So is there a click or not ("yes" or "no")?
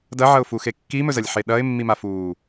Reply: no